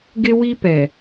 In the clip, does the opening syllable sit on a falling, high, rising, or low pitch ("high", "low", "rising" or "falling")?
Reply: high